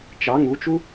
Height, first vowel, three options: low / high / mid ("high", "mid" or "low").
low